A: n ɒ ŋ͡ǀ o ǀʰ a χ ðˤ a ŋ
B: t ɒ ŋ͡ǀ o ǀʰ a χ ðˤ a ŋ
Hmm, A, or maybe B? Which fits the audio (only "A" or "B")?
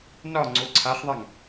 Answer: A